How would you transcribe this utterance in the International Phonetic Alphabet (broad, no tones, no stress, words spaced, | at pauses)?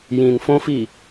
jĩn fõfi